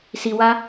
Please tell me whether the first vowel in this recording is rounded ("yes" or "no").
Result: no